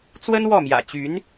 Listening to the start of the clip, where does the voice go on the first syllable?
high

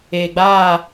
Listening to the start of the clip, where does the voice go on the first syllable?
low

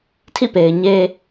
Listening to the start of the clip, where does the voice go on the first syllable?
falling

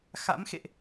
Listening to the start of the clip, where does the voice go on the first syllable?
rising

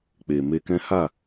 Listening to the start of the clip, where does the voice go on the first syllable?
low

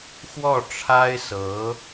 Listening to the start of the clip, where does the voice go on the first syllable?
falling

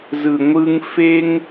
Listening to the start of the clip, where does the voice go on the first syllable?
low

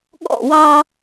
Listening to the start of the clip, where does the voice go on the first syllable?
falling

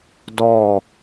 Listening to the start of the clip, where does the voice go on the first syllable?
falling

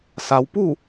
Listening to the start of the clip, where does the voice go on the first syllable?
low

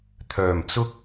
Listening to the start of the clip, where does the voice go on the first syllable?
low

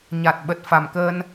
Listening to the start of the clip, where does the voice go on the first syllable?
low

